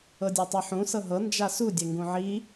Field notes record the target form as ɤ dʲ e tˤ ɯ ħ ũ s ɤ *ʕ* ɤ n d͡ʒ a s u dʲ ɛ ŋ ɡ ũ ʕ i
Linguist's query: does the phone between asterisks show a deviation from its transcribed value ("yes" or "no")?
yes